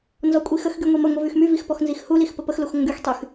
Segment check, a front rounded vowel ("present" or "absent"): present